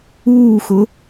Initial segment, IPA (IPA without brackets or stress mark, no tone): uː